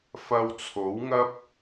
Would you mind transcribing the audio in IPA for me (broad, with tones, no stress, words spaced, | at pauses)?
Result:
fɐ˧wt͡sʰo˨˥wŋɐ˥p̚